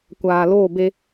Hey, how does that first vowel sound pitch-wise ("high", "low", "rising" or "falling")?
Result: low